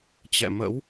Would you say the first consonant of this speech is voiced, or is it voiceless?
voiceless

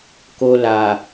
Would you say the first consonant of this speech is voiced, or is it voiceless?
voiceless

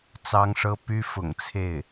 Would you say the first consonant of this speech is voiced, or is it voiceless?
voiceless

